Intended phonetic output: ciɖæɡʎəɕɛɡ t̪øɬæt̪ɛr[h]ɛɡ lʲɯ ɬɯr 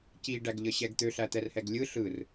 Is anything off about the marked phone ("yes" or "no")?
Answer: no